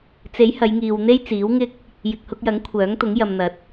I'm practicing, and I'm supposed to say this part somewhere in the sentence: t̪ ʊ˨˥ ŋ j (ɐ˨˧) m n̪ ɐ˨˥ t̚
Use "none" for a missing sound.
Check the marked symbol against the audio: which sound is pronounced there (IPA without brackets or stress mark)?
ɐ˨